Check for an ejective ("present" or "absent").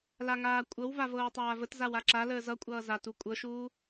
present